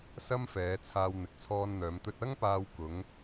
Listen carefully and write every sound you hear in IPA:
s ɐ˥ m f ɛː˨˧ t͡sʰ aː˧ w n̪ ɪ˨˥ k̚ t͡sʰ ɔː˧ n n̪ œː˨˧ m t̪ ɵ˧ t̚ ɐ˥ ŋ p aː˧ w k ʊ˨˧ ŋ

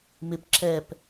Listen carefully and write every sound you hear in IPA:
m ɪ p ǁ ɛ p

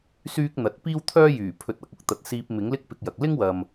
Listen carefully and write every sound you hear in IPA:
s yː˥ k̚ n̪ ɐ˨ t̚ p iː˥ w t̪ʰ œː˥ j yː˨˩ pʰ ɵ˧ t̚ ɐ˧ k̚ ʊ˥ k̚ t̪ ɐ˨˥ t̚ s iː˧ p̚ m ɪ˨˥ ŋ l ɪ˥ k̚ p ɪ˧ k̚ j ɐ˨ k̚ l ɪ˥ ŋ w ɐ˨ m

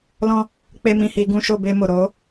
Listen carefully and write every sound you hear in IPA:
l ɔ̃˧ | k͡p e˧ m ĩ˨ h iː˨ ɡ ũ˦˨ ʃ o˦˨ b eː˧ m o˨ ɾ o˨˦

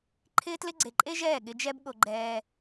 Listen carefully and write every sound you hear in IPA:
ǃʰ ɪː˦ t l ɪ˦ ɡ͡ǀ e˨ ǃʼ e˦ ʒ ɛː˦˨ ɠ ɪ˧ d͡ʒ ɛ˦ b ɠ o˧ ɡ͡ǃ ɛː˧

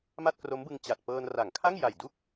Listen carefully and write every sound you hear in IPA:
m a˥˩ t̚ k r o˦˥ m b ɯ˧ ŋ t͡ɕ a˨˩ t̚ p ɤː˧ n r a˩˦ ŋ kʰ a˥˩ ŋ j a˨˩ j d u˥˩ k̚

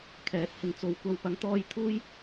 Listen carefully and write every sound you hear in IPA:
kʰ ɛː˨˥ t̚ h ɪ˨ ŋ t͡s o˨˧ w kʷ ɐ˨˧ w p ɐ˨˥ ŋ t̪ ɔː˧ j t̪ʰ uː˥ j

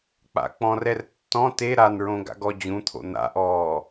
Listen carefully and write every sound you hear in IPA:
k͡p a̰ k͡p ɔ̃ r ɛ r tː ɔ̃ t e ɾ a n ɹ õ ɡ a̰ ɡ ɔ d͡ʑ ũ t̪ʰ o̰ n̪ a̰ ʔ ɔː

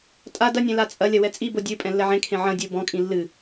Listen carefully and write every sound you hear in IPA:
tʼ a d ɐ nʲ ɛ̃ l a t͡sʼ ɐ lʲ ɐ w ɛ t͡sʼ i b o dʲ ɨ pʼ ɛ̃ lː ɛ ʕ ẽ kʰ ẽ ʕ ɐ̃ dʲ u b ɔ̃ kʼ ĩ lː ɨ

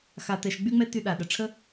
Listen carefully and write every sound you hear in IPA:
x a˧ t ɛ˧ ʃ ɡ͡b y˦ ŋ͡m ɛ˦ t y˧ ɗ a˨ ɗ ə˨ ʈ͡ʂʰ ə˦

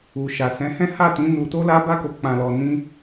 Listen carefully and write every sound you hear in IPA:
u˨ ʃ a˨ s ɛ̃˨˦ h ɛ̃˦ h a˦˨ t ĩ˨˦ n u˧ t o˦ l a˦ b a˦ k o˧ k͡p ã˧ l ɔ˧ n ĩ˦

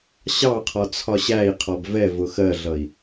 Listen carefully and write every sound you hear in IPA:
ɕ ɑ qʰ ɔ t͡sʰ ɒ ɕ æ i̯ qʰ ɔ b v ɛ v ʊ x ɜ ɮ ʌ i̯

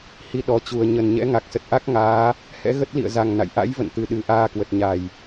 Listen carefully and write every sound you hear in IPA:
h i˨˩ ɗ ɔ˨˩ t͡ɕ u˨˩ ə̯ ɲ ə˨˩ n ɲ ɛ̰˧˥ ŋ a˨˩ k̚ s ə˨˩ t̚ ʔ a˦˥ k̚ ŋ aː˨˦ | h ɛ̰˧˥ ɣ ə˦˥ t̚ l ḭ˧˨ ə̯ z a˨˩ ŋ n a̰˧˨ j ʔ a̰˧˥ j v ə̰˧˨ n t̪ ɨ˨˩ ɗ ɨ˨˩ ʔ aː˧ k w ə˨˩ t̚ ɲ a˨˩ j

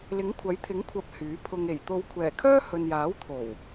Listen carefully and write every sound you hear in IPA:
l ɪ˨˥ ŋ kʷʰ ɐ˨˥ j t̪ʰ ɪ˨˥ ŋ kʷʰ ɐ˨˥ p̚ h yː˨˥ pʰ ʊ˧ ŋ e˨˩ j t̪ o˨˧ w kʷʰ ɛː˨˩ kʰ œː˥ h ɵ˨ n j aː˨˥ w t̪ʰ o˨˩ w

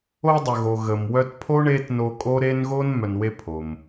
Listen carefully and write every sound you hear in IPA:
o˦ dˤ œ˨ ɣ o˨ ɣ ə˨ m w œ˦ t pʰ o˥ ɳ e˥ t n o˦ kʼ o˥ ɾ e˥ n ɣ o˥ n m œ˨ n w e˦ pʰ o˩ m

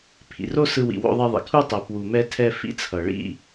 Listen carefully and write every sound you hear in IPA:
pʰ ḭ˩ r o˥ s ɯ˧ w ḭ˩ w o̰˧ ðˤ ɛ˧ ðˤ ḭ˩ kʰ u˧ tˤ ɛ˩ p w u˩ m ɛ˧ tʰ ɛ˧ f ḭ˧ t͡sʰ ʌ˩ ɭ ḭ˧

